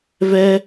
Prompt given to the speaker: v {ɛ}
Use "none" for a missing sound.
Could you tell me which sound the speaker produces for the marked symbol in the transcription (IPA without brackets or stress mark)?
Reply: ɛ